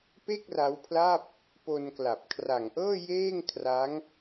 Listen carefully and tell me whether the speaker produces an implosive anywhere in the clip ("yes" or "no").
no